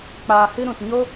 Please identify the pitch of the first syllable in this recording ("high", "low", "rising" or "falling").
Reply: low